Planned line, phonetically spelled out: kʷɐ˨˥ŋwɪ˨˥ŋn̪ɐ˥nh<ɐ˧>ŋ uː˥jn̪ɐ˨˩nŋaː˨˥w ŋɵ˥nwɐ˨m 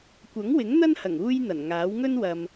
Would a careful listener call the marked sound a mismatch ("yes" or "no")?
yes